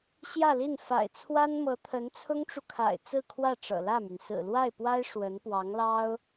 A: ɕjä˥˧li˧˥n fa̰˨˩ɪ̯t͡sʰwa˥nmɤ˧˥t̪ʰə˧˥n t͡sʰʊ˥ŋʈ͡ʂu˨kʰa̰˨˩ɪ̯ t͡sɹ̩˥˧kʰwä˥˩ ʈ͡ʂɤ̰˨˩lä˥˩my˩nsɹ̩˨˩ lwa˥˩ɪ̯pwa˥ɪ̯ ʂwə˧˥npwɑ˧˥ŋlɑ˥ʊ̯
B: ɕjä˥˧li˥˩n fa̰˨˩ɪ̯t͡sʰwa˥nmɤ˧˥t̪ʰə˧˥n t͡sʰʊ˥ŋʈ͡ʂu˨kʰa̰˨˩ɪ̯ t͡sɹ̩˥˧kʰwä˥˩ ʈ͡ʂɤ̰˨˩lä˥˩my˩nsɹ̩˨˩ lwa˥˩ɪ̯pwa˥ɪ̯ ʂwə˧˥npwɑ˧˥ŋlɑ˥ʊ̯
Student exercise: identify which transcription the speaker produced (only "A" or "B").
B